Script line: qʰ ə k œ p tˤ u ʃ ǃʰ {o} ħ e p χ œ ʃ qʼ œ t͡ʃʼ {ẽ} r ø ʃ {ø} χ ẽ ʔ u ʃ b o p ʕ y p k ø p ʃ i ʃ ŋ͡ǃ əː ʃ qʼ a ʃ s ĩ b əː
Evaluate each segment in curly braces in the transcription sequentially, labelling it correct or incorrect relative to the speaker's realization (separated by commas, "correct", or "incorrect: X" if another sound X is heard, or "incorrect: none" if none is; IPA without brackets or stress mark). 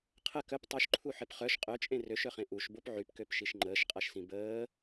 incorrect: u, correct, incorrect: œ